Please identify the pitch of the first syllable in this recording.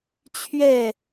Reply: falling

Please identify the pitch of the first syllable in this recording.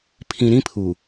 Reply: low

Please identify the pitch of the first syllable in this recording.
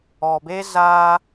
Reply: low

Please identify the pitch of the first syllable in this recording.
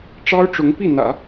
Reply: high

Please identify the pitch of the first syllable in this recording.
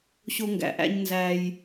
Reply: high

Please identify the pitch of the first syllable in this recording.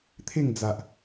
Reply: falling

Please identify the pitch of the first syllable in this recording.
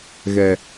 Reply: low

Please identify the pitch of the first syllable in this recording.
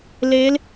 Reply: rising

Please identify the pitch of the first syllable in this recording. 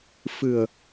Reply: low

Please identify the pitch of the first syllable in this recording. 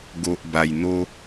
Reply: low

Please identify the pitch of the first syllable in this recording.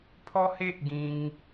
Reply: high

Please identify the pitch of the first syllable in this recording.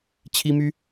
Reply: high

